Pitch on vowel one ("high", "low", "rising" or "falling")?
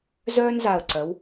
high